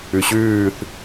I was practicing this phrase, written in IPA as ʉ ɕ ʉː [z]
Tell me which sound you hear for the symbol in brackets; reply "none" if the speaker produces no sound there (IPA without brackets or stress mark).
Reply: θ